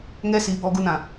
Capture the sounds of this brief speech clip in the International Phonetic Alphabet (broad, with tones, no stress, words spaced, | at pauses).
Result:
ŋɛ˦si˨˦bɔ˧ɡu˧n ã˨